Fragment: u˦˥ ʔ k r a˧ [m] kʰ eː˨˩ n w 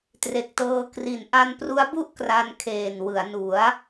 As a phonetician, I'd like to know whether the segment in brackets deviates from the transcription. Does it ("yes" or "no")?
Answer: yes